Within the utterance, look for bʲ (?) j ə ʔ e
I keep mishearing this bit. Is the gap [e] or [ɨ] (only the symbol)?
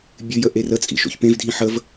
ɨ